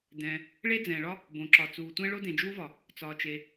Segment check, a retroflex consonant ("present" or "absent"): present